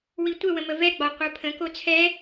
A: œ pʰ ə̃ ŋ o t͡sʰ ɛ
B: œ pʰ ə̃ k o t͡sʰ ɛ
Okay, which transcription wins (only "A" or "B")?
B